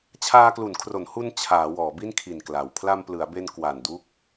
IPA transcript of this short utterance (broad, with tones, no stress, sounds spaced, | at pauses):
t͡ɕʰ aː˧ k l u˩˦ n kʰ r o˩˦ n h u˧ n t͡ɕʰ aː˩˦ w ɔː˩˦ b i˥˩ n kʰ i˨˩ n k l a˩˦ w pʰ l a˧ m p l ɯ˩˦ a̯ b e˧ n k w a˨˩ n d u˦˥ k̚